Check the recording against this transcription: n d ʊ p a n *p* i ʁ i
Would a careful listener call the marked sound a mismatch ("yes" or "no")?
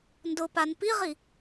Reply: no